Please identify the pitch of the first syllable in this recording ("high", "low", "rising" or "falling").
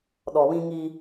low